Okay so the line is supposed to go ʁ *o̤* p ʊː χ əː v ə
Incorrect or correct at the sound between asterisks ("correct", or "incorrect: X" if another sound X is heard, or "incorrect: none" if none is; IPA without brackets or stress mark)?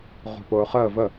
correct